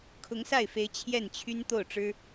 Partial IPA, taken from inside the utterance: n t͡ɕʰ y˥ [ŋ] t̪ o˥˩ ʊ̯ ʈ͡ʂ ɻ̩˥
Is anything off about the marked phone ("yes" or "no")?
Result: yes